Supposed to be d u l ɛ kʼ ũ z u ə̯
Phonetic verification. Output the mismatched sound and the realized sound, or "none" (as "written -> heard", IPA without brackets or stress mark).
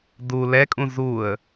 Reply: none